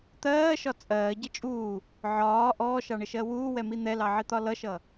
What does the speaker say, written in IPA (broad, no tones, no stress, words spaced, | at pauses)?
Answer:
t̪ɜːʃɒ t͡sʼɜːɟə t͡ʃʼuː | ʕɒː ʔɔːʃɑɳɪʃɜ wuːwɛmi n̪ɛlɑʕit̪ɒ lʌʃʌ